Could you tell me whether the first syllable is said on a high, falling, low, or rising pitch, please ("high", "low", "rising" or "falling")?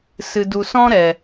low